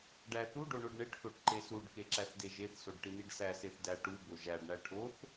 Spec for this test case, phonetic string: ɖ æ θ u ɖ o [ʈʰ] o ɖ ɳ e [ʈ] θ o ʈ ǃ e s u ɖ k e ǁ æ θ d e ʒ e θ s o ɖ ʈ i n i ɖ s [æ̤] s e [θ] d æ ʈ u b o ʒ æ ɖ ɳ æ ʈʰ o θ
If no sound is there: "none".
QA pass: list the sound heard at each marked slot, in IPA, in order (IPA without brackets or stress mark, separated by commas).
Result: ɳ, ʈ, æ, θ